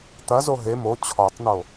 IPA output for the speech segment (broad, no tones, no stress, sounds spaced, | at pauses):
t̪ ɐ z o ɦ e m o t͡ɕʰ ɔ tˤ n̪ o